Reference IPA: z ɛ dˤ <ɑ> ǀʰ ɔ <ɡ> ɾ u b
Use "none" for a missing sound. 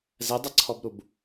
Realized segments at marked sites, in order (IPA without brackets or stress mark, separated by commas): ɐ, b